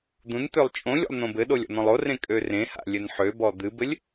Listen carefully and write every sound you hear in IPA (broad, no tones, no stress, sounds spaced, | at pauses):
d̪ ũ n t̪ ø lˠ t͡ʃʼ õ lʲ o̰ lˠ n̪ õ b ɘ ɗ o lʲ ɔ̰ n̪ ɔ̃ lˠ o r ẽ kʼ ø r ẽ h a̰ lʲ ɘ n ħ ø b ɔ d̪ ɨ b ɘ lʲ